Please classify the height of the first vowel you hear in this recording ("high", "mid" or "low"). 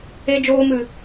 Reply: mid